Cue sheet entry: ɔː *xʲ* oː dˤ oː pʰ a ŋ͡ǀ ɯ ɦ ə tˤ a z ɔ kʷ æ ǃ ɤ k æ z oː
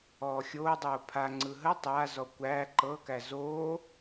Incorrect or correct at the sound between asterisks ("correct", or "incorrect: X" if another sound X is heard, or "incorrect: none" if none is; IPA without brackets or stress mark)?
correct